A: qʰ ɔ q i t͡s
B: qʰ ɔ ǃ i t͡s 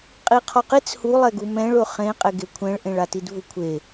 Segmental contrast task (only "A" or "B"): A